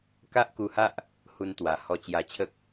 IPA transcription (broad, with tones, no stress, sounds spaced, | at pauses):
k a˦ ʔ k u˧ h a˦ ʔ | h u˧ n t̪ w a˨˩ h ɔ˧ t͡ɕ j a˧ t͡ɕʰ ə˦ k̚